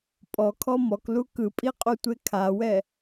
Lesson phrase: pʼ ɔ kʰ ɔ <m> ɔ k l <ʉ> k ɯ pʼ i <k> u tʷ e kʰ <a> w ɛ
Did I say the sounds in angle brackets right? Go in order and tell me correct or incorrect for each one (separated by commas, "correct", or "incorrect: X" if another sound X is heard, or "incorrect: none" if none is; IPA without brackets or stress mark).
correct, incorrect: u, incorrect: qʼ, correct